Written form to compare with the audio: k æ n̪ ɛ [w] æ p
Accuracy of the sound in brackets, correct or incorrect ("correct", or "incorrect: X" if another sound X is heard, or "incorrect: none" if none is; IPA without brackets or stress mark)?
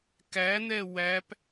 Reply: correct